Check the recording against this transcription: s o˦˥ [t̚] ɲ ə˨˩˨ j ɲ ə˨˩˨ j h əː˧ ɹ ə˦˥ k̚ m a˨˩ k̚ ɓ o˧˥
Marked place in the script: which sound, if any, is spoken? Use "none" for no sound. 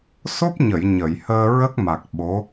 p̚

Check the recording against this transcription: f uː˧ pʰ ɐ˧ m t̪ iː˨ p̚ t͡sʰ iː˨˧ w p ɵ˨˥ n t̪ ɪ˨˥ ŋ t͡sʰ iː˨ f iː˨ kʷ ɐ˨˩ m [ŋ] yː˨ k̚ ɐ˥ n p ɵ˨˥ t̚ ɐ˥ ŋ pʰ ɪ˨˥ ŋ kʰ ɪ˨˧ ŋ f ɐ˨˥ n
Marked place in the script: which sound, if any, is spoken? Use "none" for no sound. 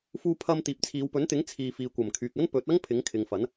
kʰ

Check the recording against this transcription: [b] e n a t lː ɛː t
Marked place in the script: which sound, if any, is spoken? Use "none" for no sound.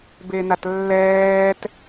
b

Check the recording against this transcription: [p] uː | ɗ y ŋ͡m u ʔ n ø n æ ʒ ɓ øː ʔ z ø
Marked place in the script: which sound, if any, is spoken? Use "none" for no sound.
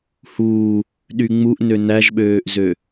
h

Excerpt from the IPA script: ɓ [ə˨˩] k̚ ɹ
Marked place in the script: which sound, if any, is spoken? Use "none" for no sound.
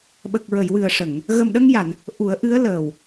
ə˨˩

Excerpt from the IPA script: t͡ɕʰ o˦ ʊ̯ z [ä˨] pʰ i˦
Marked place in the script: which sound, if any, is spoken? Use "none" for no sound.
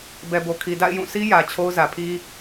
ä˨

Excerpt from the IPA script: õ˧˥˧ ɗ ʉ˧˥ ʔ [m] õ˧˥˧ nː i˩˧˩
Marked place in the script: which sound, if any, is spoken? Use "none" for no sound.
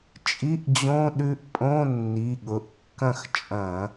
pʼ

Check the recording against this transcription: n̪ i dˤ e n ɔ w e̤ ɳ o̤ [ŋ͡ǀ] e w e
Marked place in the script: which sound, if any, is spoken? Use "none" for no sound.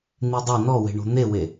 n̪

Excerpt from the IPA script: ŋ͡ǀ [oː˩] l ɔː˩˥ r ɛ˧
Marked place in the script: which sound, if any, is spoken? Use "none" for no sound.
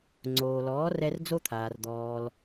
oː˩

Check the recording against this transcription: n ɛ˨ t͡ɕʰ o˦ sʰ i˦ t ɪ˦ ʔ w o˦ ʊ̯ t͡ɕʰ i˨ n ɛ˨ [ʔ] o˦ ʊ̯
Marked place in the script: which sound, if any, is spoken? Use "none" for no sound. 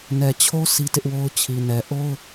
ʔ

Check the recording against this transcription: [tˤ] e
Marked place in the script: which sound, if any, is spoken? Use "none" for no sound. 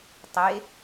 tˤ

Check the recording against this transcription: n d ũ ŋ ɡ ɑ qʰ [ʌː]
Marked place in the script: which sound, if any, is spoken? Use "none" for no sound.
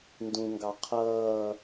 ʌː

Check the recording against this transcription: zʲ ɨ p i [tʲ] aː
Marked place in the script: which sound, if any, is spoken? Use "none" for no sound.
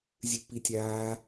tʲ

